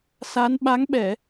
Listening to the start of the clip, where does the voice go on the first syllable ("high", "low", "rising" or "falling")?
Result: rising